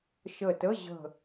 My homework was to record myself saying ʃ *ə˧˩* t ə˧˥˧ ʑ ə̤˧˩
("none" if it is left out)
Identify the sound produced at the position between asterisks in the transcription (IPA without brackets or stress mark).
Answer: ə˧˩